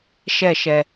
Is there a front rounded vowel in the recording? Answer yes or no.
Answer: no